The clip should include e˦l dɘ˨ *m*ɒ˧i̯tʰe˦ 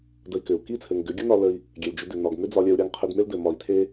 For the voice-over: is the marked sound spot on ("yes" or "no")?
yes